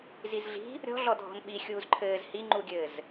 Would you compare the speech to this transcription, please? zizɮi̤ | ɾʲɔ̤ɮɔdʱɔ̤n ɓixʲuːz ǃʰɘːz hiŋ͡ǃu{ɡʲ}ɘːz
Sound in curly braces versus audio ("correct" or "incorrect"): correct